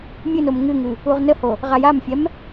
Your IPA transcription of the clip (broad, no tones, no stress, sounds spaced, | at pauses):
mʲ ɨ n o m ŋ ɨ ŋ ɨ | u ʁ n ə h o | ʁ a j a m fʲ ɛ m